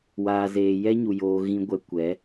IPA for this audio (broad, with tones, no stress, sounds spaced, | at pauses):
w aː˧ z eː˧ j ɛ˦ ɲ u˨ j oː˦ ɣ ĩ˦ ɡʷ ɛ˧ kʷ ɛ˨˦